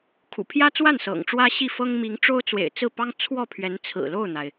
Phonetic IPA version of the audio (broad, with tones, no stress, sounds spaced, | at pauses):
kʰ ṵ˨˩ pʰ j ä˥ t͡s w a˥˩ n s ɤ̰˨˩ ŋ ʈ͡ʂ w ä˥ ɕ i˥˩ f ɤ˥ ŋ m i˧˥ ŋ ʈ͡ʂ o˥ ʊ̯ t͡s w ḛ˨˩ ɪ̯ t͡s ɹ̩˥˩ p ɑ˥ ŋ t͡sʰ w ɔ˥˩ pʰ ɥ ɛ˧˥ n t͡sʰ ɹ̩˨˩ l o˥˩ ʊ̯ n̪ a˩ ɪ̯